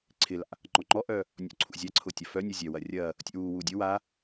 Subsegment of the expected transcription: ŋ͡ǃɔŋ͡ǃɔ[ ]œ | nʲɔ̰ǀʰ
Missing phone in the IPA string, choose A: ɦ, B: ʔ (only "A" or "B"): B